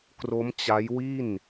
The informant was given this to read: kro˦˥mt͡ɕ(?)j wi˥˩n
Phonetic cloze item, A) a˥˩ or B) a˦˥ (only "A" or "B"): B